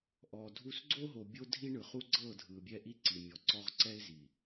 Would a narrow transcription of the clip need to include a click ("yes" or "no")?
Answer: yes